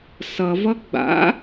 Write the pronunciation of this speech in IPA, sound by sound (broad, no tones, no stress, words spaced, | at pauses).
sʌvʌ ɡ͡ba̰